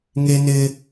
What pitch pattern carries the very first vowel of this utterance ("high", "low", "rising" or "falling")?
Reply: high